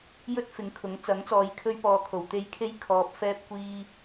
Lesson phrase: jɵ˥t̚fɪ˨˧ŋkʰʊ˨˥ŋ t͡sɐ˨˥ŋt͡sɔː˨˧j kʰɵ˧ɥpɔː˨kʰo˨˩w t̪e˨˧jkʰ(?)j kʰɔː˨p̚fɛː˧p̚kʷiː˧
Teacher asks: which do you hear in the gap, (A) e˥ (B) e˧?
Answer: B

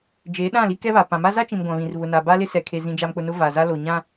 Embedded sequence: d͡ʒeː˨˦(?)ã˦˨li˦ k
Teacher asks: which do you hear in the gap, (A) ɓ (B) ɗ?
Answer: B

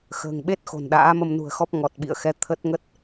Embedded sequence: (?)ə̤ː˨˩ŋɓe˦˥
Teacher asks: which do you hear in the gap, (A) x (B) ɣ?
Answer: A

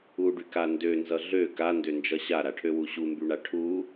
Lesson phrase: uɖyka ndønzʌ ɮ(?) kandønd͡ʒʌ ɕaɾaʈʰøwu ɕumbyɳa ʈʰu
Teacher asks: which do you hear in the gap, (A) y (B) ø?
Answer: B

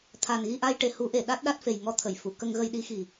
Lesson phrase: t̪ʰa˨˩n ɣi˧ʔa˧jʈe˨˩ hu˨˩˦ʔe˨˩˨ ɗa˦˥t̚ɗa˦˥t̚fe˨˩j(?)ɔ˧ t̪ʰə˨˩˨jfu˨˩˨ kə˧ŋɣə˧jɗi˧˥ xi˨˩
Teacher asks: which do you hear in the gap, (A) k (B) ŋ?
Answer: B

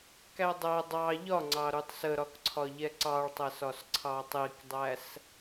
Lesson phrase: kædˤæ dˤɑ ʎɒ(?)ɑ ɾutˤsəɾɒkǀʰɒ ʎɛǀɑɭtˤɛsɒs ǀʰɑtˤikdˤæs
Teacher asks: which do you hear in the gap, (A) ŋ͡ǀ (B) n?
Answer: A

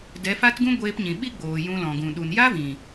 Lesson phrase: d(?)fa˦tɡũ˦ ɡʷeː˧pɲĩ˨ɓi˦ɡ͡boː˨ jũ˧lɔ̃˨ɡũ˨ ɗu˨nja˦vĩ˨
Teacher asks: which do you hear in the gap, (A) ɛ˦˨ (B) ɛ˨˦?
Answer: B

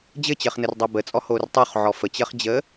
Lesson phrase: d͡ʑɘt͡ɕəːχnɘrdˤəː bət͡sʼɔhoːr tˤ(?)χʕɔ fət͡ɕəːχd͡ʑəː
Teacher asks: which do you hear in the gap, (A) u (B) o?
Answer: B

